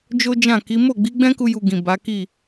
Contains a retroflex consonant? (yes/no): no